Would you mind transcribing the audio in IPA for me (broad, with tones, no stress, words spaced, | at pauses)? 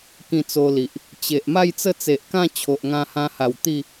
kĩ˧t͡so˧li˨ʔ | t͡ɕe˨ʔ ma˥˧jt͡sə˥˧t͡se˨ʔkã˥˧ t͡ɕʰo˨ʔŋã˧hã˧ha˨˩w t̪i˥˧